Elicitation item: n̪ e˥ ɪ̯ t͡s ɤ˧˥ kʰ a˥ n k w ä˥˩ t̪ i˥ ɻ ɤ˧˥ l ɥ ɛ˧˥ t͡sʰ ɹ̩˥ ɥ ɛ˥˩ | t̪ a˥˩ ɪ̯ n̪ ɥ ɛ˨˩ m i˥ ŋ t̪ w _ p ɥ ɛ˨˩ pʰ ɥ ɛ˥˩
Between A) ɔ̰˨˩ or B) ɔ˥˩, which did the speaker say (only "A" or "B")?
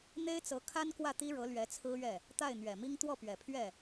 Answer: B